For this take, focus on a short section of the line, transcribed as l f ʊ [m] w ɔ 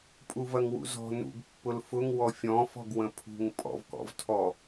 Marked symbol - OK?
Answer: no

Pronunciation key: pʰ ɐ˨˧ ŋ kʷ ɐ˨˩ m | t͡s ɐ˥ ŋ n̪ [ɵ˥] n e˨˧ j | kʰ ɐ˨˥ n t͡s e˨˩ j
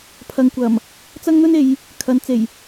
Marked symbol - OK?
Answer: yes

